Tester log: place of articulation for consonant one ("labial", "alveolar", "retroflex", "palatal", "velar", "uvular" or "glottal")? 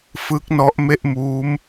labial